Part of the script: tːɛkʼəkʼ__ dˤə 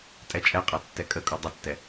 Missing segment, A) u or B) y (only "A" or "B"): A